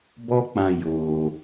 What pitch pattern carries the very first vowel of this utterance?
high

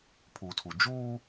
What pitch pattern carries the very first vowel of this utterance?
low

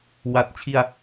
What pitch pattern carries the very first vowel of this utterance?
low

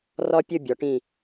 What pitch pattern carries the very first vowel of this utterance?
high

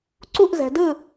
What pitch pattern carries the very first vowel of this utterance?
falling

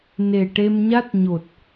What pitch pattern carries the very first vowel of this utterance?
low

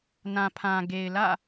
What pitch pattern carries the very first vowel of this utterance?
low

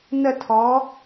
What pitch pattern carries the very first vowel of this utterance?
falling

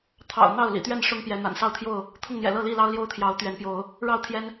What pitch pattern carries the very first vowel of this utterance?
low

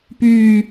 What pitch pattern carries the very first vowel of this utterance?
low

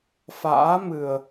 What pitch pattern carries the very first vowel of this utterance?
rising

